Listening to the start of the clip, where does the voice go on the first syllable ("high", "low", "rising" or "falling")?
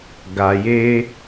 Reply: low